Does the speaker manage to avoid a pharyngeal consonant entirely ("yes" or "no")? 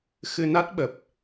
yes